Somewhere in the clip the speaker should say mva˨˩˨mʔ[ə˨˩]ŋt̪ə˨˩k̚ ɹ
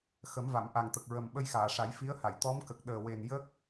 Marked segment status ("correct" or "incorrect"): incorrect